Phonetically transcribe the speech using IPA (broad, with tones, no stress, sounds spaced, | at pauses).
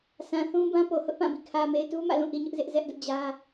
sʰ ã˨ θ ũ˦ b ã˦ p o˨ h ʊ˦ ʔ p ã˦˨ b ḭ˦˨ kʰ ä˨ m e˨ ɪ̯ t u˦ m ä̰˦˨ l ũ˦˨ ʔ i˨ ɲ ʊ˦ ʔ z ɪ˦ ʔ z ɛ˦ ʔ d ʊ˦ ʔ d͡ʑ ä˦